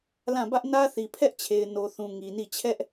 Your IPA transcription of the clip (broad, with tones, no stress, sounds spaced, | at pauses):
l ã˦˨ b ä˦ ʔ n ä˦ θ i˨ pʰ ɛ˦ ʔ t͡ɕʰ e˨ ɪ̯ n o˨ θ ũ˨ ŋ i˨ n i˦˨ t͡ɕʰ ɛ˦ ʔ